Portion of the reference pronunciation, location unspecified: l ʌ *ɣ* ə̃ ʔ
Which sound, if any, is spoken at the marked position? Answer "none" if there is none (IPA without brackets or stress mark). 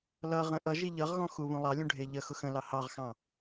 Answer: ʁ